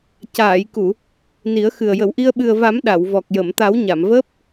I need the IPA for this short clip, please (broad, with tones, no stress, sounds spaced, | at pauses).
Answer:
c aː˨˩˨ j k u˨˩˨ | n i˨˩˦ ə̯ x ɨ˨˩ ə̯ j ə˨˩˨ w ʔ i˧ ə̯ ɓ ɨ˨˩ ə̯ v a˨˩˦ m ɗ a˨˩˨ w v ɔ˨˩ k̚ j ə˨˩˨ m t̪ a˨˩˦ w ɲ a˨˩˨ m v əː˦˥ p̚